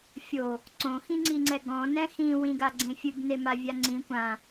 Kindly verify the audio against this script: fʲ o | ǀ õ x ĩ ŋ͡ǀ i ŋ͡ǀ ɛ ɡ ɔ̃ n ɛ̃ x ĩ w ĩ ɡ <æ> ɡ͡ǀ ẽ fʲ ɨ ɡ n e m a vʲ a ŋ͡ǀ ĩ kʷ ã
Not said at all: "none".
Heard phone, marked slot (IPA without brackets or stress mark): a